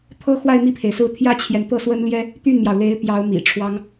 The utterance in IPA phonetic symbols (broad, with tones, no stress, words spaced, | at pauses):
t̪ʰɤ˥xwa˥˧ɪ̯ mi˥˩pʰe˩ɪ̯sɹ̩˥˩ t̪ʰjä˥t͡ɕʰjɛ˨n t̪ɤ˥˩ swə˥nljɛ˥ | t̪y˥˩nmjɑ˩ʊ̯le˧˥ɪ̯ pjɑ˧˥ʊ̯ mḭ˨˩ʈ͡ʂʰwɑ˥ŋ